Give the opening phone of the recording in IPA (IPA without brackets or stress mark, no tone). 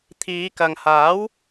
t̪ʰ